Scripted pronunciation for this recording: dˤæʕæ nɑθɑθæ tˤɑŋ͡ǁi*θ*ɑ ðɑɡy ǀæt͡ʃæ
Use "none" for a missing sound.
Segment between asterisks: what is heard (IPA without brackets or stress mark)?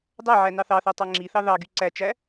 θ